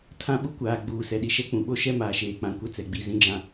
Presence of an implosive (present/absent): present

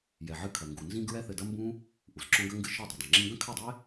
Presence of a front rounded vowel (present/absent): absent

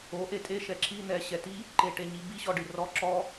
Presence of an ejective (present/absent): present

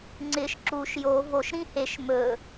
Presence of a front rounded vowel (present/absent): absent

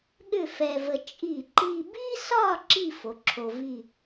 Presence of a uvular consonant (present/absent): absent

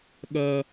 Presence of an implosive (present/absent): present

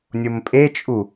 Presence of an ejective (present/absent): present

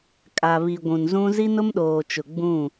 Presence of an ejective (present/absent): present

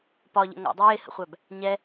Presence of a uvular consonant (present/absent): present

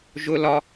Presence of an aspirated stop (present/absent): absent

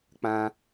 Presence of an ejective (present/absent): absent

